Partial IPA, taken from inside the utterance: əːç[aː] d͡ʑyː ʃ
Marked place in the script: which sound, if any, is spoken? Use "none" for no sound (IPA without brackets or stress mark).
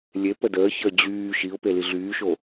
əː